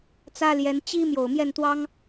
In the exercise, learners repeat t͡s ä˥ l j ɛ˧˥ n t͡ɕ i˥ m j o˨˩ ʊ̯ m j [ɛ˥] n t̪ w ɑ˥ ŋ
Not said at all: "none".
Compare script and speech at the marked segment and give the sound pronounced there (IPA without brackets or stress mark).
ɛ˥˩